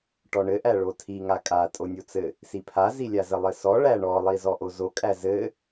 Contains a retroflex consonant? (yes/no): yes